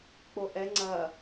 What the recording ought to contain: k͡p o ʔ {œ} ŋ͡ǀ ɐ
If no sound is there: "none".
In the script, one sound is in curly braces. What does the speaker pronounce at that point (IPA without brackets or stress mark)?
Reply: ɛ